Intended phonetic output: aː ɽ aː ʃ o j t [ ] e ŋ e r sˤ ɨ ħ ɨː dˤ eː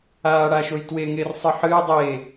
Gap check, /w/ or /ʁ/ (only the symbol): w